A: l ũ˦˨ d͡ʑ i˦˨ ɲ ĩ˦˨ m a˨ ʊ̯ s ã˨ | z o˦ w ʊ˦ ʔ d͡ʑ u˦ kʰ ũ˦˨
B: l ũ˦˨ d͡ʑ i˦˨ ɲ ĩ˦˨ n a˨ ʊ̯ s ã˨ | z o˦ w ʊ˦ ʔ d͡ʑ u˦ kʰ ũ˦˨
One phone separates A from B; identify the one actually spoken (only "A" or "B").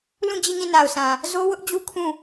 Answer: B